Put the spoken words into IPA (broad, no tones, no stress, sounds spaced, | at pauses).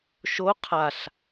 ʃ o qʰ a ɬ